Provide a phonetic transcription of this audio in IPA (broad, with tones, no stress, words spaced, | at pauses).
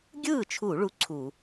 ɡʲɯː˥˩t͡ʃʰu˧˩˧ ɭu˧˥˧ǀʰu˧˩˧